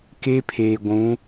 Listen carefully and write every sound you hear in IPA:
k e˦ pʰ eː˨ ɡʷ ũ˨˦

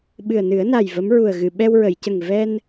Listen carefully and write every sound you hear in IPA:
ɓ ɨ˨˩ ə̯ n ɨ˨˩˦ ə̯ n a˨˩ j v ə˧˥ m ɹ u˨˩ ə̯ ɣ ɨ˨˩˨ ɓ ɛ˧ w ɹ ə˨˩˨ j c ə˨˩ ŋ v ɛ˧ n

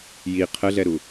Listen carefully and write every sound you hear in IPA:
j i qʰ ə ɮ ɛ ɾ u

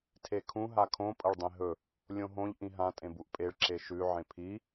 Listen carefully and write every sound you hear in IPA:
tʰ e kʰ ũ ɦ a kʰ õ pʼ ɐ ɭ dˤ ẽ ɦ ɵ | lʲ õ ɦ õ ʎ ʔ ĩ ɦ ã tʼ ẽ b u ʔ pʼ e ɭ ǁ e ʃ ʉ ʕ ẽ pʰ i

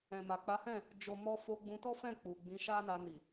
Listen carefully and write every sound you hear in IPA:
ɛ̃˨ m a˨ k͡p a˨˦ h ɛ̃˦˨ | d͡ʒ o˨ m ɔ˧ f o˧ ɡ͡b ũ˧ t ɔ˦ f ɛ̃˦˨ k͡p u˨ ɡ͡b ĩ˨˦ ʃ a˦ n a˧ n i˨

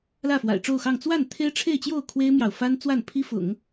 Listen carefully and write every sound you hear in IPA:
l ä˥˩ f w a̰˨˩ ɪ̯ ʈ͡ʂ o˥˧ ʊ̯ x ɑ˥˧ ŋ t͡s w a˥˩ n t̪ʰ e˥ ɪ̯ ʈ͡ʂʰ e˥˧ ɪ̯ t͡ɕ j o˥˩ ʊ̯ kʰ w e˥ ɪ̯ m j ɑ˨ ʊ̯ f a˥ n t͡s w a˥˩ n pʰ i˥ f ʊ̰˨˩˦ ŋ

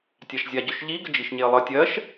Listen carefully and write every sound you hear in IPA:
tʲ a ʃ zʲ a ɟ ɵ ʃ ʎ i ɡ ə d͡ʒ i ʃ ɲ e ə̯ lˠ ə tʲ ɜ ʃ

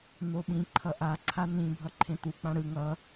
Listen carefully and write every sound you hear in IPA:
n o ɓ ĩ ǃʰ ʌ ʔ a ǀʰ a n ĩ bʱ ʌ ǃʰ ẽ t̪ u k͡p ã ɽ ɯ ŋ ʌ

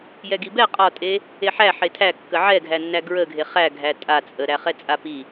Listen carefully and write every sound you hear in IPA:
j ɛ ɡ i b ɛ qʼ ɒ tʼ e | e ħ æ ħ e tʰ æ kː ə ʕ ɛ ɡʱ æ nː æ ɡ ɹ ə ɡʱ e χ æ ɡʱ æ tʼ a t͡sʼ ə ɾ æ χ ɛ t͡sʼ a p i

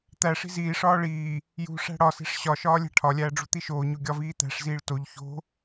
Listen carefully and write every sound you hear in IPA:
t̪ æ ʂ i̤ z iː ʂ ɒː ɭ iː | j ṳ ʂ æ̤ ɽ ɒ s e̤ ʂ ɕ ɒ ʃ ɒː lʲ æ̤ ʈʰ ɒ lʲ æː ɖ͡ʐ ṳ t̪ i ʃ oː ɲ o ɡʲ ɒ v iː t̪ æ̤ ʂ z iː ɭ t o ʎ ç o̤

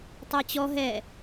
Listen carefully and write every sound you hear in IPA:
tˤ æ t͡ɕ ɔ ɦ ɛ

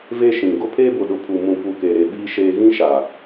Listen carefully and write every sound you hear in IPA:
v e˦ ʃ ĩ˨ ɡ ʊ˦ pʰ eː˦ b ʊ˨ ɗ ʊ˨ pʰ u˨ m ũ˨ p u˨ k e˨ ɾ e˨ ɓ iː˦ ʃ eː˦ ɣ ĩ˦ ʃ a˨

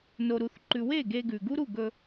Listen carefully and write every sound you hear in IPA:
n o˨ ɾ u˨ θ ǃ ʉ˨ w e˦˨ ɡ e˧ ɡ ʉ˨ ɡ u˦ ɾ u˦˨ ɡ ɵ˧

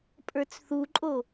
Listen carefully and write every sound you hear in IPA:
pʼ ə˞ t͡s θ u ǃʼ o

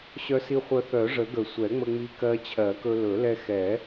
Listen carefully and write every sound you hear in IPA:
ɕ œ˧ s i˧ χʷ œ˧ θ œ˨˩˦ ʐ ə˨˩˦ ɡ ə˨˩˦ sʷ ɛ˨˩˦ ŋ͡m ə˧ ŋ͡m i˧ k ɜ˧ t͡ɕʰ ɜ˨˩˦ k ɵ˧ l ɵ˨˩˦ l ɛ˧ x ɛ˨˩˦

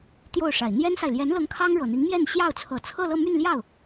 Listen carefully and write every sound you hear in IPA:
t̪ j o˥˩ ʊ̯ ʂ a˨˩ ɪ̯ n̪ j ɛ˥ n s a˨ ɪ̯ l j ɛ˧˥ n l ɤ˧˥ ŋ kʰ ɑ˥ ŋ ɻ ɤ˨˩ n̪ i˧˥ ŋ m j ɛ˥˧ n ɕ j ɑ˥˩ ʊ̯ t͡sʰ ɤ˨˩ t͡sʰ ɤ˥˧ l ɤ˥˧ m y˥˧ n l j ɑ˥˩ ʊ̯

